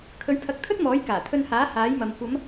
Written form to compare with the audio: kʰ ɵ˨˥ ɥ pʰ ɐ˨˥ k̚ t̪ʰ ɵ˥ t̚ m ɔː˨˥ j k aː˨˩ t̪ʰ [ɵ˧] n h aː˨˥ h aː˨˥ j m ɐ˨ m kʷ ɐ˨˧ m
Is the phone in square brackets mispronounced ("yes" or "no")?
no